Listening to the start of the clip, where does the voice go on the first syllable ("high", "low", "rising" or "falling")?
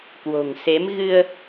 low